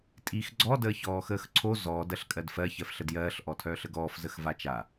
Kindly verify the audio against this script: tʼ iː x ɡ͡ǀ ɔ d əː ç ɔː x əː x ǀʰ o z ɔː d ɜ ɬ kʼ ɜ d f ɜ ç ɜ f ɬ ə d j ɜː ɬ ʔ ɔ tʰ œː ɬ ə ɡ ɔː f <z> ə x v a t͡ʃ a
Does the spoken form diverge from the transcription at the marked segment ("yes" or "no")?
no